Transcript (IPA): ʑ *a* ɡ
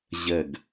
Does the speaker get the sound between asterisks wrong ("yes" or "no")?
yes